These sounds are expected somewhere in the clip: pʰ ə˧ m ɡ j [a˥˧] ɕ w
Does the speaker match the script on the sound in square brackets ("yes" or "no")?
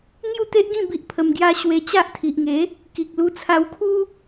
no